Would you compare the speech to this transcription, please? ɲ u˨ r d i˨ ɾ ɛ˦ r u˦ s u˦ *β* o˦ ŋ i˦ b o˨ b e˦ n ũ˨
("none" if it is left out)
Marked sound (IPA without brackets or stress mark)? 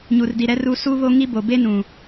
β